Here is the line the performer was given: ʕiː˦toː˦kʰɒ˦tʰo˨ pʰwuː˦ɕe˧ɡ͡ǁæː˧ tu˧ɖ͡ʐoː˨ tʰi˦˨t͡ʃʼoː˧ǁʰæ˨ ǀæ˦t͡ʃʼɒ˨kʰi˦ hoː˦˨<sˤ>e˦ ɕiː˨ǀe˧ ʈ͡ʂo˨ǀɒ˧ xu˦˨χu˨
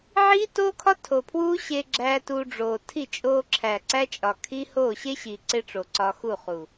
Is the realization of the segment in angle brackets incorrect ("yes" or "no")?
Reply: yes